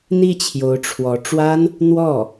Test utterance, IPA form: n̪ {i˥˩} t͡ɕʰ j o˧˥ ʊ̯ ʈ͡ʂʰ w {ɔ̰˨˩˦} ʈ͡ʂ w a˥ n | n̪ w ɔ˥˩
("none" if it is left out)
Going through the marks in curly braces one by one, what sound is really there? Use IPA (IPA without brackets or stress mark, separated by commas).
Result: i˥˩, ɔ˧˥